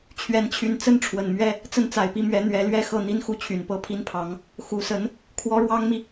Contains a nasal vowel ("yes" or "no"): no